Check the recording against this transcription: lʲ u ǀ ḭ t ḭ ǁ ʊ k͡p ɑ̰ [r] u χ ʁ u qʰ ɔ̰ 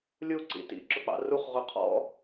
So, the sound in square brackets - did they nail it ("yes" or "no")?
yes